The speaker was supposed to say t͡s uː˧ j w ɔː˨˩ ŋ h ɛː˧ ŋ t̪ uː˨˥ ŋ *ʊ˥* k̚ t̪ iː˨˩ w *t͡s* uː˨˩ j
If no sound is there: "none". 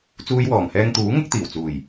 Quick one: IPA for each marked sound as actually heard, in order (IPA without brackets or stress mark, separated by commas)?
ʊ˥, t͡s